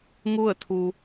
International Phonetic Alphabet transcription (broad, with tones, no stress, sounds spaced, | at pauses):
ŋ u˥˨ ə̯ t̪ʰ u˩